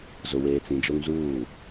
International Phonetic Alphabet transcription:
z ʊ˨ w eː˨ t͡s ĩ˨ d͡ʒ o˦ ŋ z uː˦˨

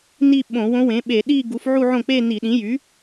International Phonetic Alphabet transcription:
n i˥˧ ɓ õ˧˩˧ w õ˧˥ w ẽ˩˥ ɓ e˧˩˧ ɗ i˥˧ ɡ u˩˥ f ʕ u˥˧ ʕ õ˥˩ k͡p e˥˧ n i˧˩˧ ɗ ĩ˩˥ j y˩˥

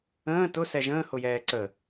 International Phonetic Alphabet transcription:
ə̃ː t ʊ s ɛ ʒ ə̃ː h ʊ j ɛː ǀ ə

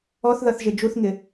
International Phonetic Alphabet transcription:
ɔ θ ð ʌ θ ʒ ɪ d͡ʒ u θ ŋ ɪ

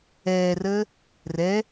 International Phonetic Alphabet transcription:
ɛː r əː | r ɛ

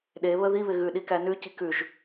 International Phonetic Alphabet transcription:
ɗ e β ə ð i β ɪ ɣ ʉ ɗ i k æ n ʉ c i k ʉ ʒ

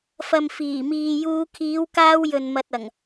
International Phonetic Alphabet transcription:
f ɐ˨ m f iː˨˩ m iː˨ j uː˧ kʰ iː˨˧ w k aː˧ w j ɵ˨ n m ɐ˨ t̚ ɐ˨˩ ŋ

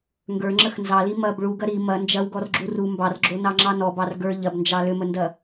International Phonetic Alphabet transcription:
ŋ ɡ ə˞ ŋ͡ǁ ə x n z ɑ l i m ɐ b ɭ u ɡ ɐ ɾ i m ɐ n d͡ʒ ɐ w ɡ ɔ r ɡ͡ǁ u r u m b ɑ r ɡ͡ǁ o n ɑ ŋ͡ǁ ɑ n ɔ b ɑ r ɡ ə˞ ʎ ɐ b n d͡ʒ ɑ l ʏ m ə n d ɐ

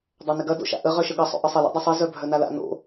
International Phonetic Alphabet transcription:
dˤ a n ɪ ɡ ɐ d o̰ ʃ a̰ ʔ ə ʁ œ ʃ ə ɠ ɐ sˤ o̰ ʔ ə sˤ ə l o̰ dˤ ɐ sˤ i z œ bʱ œ n a l a̰ n o̰

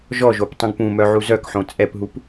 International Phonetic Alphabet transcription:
ʒ ɔ ʒ o p tˤ ũ ɡ p ũ m œ ʕ u z œ k ħ õ t͡sʼ ɛ p ɦ u p

